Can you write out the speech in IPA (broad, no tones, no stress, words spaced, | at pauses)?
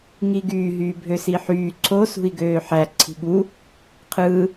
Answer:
ŋiɡyː ɦyːbʱøsiħyː ǀʰo sṳi̯ɡøːħæ ǀʰi̤ɠu | qʰɯː